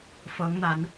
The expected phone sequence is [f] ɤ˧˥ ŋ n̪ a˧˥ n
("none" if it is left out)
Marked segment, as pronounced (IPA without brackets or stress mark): f